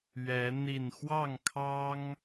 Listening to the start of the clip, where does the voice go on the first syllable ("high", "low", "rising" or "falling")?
rising